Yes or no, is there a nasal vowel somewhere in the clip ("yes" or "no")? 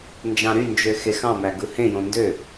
yes